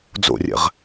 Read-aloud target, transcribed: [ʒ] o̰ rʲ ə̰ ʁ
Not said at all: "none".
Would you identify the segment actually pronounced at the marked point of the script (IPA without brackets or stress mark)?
d͡z